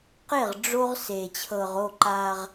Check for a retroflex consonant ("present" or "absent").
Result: present